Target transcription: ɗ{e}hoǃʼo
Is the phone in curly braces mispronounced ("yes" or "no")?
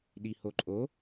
yes